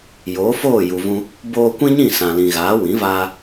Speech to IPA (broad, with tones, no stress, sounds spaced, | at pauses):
j oː˨˦ f oː˦˨ j u˨ v ũ˧ | b oː˧ kʷ ĩ˦ ɲ ĩ˦˨ s ã˨ l ĩ˨ ɣ aː˨˦ w ĩ˨˦ v aː˧